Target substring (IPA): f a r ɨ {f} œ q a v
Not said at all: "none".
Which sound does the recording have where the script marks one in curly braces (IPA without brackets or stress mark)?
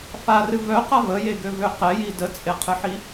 v